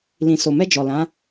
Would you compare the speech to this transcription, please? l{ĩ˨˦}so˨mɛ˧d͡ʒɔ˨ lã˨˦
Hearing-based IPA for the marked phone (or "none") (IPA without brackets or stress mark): ĩ˨